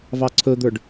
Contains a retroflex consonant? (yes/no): yes